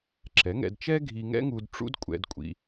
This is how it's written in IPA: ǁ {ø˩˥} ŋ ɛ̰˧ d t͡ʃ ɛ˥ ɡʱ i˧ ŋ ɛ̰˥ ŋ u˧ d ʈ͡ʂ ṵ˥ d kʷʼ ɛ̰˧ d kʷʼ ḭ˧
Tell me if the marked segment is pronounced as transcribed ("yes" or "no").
no